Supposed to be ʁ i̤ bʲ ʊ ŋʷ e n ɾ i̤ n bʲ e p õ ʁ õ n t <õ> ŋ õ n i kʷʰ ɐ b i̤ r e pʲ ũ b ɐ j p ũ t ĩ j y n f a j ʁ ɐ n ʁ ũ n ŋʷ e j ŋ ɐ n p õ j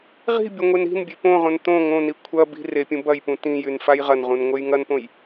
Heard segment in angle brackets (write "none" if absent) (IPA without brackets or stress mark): õ